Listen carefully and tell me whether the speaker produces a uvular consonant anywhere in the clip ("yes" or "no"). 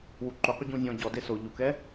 yes